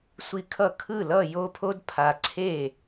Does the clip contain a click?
yes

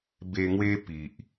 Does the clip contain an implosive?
no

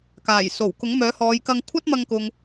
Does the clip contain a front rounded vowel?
yes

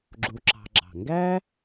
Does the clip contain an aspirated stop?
no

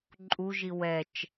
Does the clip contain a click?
yes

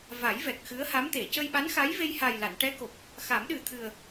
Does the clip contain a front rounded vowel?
no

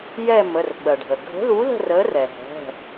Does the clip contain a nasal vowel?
no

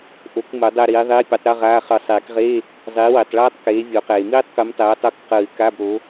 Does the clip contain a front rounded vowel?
no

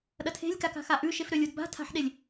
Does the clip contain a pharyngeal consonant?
yes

